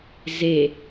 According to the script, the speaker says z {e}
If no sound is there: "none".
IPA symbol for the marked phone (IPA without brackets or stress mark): e